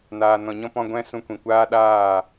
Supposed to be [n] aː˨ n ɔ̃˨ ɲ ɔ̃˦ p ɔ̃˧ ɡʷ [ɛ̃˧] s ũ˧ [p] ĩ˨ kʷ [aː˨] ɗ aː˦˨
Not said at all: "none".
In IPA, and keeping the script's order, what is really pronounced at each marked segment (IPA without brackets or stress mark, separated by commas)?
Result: n, ɛ̃˧, kʷ, aː˦